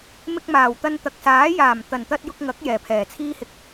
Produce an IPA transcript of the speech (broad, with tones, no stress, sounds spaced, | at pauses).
m ɪ˧ k̚ m aː˨˩ w t̪ ɐ˧ n t̪ ɐ˨ k̚ s aː˨˥ j aː˨˩ m t̪ ɐ˨˩ n t̪ ɐ˧ t̚ j ʊ˧ k̚ ŋ ɐ˨˥ k̚ j ɛː˨˩ pʰ ɛː˨˩ t͡sʰ iː˥ h ɪ˧ k̚